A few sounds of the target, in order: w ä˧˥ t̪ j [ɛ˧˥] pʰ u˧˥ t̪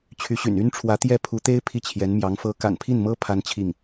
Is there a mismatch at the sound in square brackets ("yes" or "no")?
yes